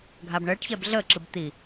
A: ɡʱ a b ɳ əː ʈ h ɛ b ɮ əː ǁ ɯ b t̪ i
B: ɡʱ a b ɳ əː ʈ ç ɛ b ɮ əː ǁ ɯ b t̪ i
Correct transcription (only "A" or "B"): B